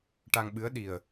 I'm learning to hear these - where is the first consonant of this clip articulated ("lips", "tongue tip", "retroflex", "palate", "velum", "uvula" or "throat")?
retroflex